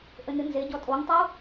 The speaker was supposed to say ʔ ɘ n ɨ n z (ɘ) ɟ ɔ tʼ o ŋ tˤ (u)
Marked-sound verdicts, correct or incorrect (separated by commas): incorrect, correct